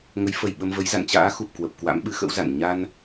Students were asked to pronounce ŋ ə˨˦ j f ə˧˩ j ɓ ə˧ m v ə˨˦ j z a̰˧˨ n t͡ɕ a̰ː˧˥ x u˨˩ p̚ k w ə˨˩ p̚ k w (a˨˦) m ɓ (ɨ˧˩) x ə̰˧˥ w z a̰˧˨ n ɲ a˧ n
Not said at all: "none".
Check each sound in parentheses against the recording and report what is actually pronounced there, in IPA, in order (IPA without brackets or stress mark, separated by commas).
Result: a̰˧˥, ɨ˨˦